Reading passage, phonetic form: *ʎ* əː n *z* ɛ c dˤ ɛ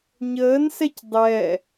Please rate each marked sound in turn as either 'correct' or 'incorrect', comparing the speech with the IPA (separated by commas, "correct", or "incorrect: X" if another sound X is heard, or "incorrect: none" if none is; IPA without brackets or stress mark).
incorrect: ɲ, incorrect: s